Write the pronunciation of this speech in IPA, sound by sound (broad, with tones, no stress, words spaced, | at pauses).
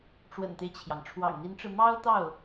ʈ͡ʂwə̰˨˩nt̪e˦ɪ̯t͡ɕʰjɑ˩ŋ ʈ͡ʂʰwɑ̰˨˩ŋn̪i˧˥nʈ͡ʂɻ̩˧ mɑ˥ʊ̯t̪ɑ˥˩ʊ̯